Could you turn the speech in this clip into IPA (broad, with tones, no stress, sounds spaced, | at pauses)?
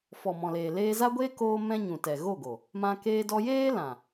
f ɔ˨ m ɔ̃˨ l eː˨ l eː˧ z a˦ ɡʷ eː˦ k oː˦ m ɛ̃˦ ɲ ũ˨ t ɛ˨ ɣ o˦˨ ɡ o˨ | m ã˧ k eː˧ d ɔ˧ j eː˦ l ã˨